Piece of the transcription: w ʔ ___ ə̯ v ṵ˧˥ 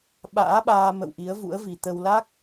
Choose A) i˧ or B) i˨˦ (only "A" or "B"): B